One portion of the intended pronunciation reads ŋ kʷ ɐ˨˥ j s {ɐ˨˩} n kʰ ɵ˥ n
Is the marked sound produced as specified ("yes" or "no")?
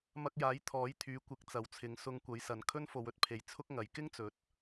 no